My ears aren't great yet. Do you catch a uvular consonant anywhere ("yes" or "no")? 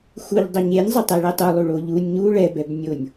no